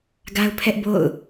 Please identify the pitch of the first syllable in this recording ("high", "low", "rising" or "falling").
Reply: high